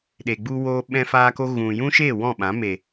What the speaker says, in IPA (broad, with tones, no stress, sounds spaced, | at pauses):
ɗ e˨ ɡ͡b u˧ w oː˧ ɓ ɛ̃˧ f aː˧ k o˧ ɣ ũ˨ j ũ˦ ʃ eː˦˨ w ɔ̃˦˨ ɓ ã˨˦ m e˨